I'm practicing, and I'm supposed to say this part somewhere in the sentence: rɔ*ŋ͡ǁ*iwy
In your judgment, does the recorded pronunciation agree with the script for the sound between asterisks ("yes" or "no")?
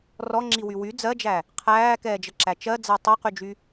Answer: yes